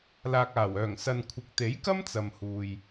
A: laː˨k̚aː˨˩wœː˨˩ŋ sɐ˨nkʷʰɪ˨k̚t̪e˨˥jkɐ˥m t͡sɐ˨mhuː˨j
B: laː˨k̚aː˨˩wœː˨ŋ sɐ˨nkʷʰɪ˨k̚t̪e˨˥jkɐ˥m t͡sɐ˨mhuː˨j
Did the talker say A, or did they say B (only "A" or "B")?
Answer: A